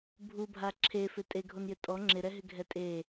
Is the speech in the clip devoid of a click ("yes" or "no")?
no